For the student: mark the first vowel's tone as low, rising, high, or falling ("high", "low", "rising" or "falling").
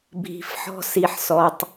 low